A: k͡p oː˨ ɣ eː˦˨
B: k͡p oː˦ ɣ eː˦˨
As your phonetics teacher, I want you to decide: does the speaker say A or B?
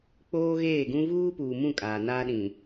B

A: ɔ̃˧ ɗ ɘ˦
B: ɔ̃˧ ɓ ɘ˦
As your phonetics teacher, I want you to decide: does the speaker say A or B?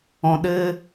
A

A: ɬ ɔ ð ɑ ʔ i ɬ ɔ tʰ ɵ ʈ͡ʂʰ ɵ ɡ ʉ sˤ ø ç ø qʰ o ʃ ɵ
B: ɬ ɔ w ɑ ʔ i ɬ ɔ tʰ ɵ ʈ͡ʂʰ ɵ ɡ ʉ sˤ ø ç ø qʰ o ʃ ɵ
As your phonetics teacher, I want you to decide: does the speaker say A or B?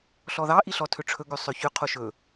A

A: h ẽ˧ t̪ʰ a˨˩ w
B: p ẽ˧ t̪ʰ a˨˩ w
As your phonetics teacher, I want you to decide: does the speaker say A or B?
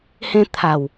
A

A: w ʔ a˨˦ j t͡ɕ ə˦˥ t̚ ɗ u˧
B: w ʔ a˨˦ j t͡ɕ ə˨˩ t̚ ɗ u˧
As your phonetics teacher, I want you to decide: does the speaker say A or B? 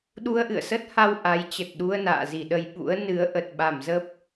B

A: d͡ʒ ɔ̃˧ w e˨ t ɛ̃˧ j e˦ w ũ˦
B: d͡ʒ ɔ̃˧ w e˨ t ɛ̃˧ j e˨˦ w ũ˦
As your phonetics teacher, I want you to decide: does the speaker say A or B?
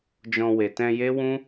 A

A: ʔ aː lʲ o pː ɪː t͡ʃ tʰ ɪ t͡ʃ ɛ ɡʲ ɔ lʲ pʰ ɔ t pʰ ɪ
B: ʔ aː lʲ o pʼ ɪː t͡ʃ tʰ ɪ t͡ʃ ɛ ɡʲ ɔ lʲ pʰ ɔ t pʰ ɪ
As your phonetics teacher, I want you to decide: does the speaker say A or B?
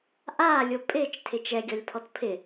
B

